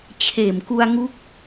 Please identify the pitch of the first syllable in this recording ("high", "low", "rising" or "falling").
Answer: low